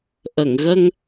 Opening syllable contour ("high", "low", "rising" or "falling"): low